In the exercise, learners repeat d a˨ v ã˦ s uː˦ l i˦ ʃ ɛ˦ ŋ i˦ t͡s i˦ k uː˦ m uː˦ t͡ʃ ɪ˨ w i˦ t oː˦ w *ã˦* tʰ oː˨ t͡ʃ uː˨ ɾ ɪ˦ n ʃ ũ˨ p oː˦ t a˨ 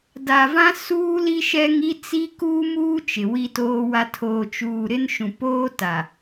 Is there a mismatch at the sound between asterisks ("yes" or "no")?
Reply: yes